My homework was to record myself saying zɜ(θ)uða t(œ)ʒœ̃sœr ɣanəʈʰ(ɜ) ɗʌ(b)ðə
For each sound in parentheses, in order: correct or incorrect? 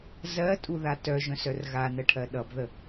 incorrect, correct, correct, correct

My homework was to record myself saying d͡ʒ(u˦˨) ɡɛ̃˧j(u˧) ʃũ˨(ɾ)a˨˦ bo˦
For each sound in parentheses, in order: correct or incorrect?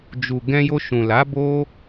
incorrect, incorrect, incorrect

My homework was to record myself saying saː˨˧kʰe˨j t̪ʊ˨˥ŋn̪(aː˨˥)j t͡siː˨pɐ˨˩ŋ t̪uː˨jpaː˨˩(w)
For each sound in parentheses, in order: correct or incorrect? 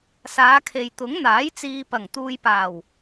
correct, correct

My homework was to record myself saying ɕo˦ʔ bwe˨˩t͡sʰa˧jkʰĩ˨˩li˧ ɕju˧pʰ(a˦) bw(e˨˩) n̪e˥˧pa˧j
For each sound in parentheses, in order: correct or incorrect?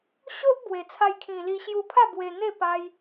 incorrect, incorrect

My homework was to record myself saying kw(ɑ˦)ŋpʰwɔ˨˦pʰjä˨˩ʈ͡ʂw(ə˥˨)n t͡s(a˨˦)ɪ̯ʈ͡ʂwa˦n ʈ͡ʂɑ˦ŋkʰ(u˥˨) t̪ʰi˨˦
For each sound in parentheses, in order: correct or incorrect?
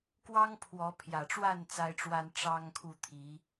correct, incorrect, incorrect, correct

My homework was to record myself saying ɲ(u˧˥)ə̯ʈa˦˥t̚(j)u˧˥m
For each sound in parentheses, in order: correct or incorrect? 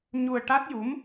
incorrect, correct

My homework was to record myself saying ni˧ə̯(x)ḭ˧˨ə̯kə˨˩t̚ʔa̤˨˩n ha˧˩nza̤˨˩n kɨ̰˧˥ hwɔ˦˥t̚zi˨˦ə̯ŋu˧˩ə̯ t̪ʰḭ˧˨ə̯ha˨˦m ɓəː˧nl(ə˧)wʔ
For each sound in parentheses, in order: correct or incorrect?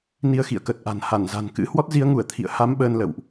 correct, incorrect

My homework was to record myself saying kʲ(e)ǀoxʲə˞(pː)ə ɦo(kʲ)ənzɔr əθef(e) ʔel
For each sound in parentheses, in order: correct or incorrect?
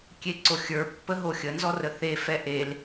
correct, correct, incorrect, incorrect

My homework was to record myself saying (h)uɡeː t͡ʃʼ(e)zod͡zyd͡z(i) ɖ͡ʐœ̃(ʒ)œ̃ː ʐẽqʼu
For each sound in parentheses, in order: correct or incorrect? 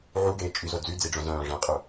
incorrect, incorrect, correct, incorrect

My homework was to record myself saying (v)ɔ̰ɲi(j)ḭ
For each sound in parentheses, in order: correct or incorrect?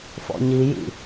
incorrect, correct

